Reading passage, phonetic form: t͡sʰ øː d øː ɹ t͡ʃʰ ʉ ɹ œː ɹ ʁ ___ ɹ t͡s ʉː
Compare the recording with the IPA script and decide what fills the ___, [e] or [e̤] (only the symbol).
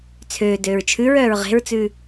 e̤